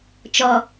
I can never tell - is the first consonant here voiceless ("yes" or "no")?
yes